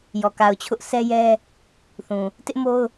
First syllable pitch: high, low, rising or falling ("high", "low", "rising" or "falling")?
low